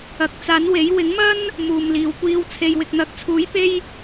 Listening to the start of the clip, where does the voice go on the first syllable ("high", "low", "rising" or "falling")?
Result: rising